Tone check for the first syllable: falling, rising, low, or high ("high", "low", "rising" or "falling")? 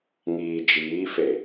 low